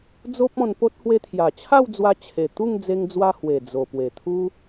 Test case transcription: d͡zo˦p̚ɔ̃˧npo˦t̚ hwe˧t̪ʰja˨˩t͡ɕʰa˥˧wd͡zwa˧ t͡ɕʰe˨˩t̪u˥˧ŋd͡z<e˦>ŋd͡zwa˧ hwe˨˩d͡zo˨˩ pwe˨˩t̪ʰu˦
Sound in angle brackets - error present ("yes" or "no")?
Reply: yes